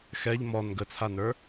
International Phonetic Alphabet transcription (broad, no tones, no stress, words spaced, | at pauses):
xɛʎ mɔn ɡət͡sʰanə˞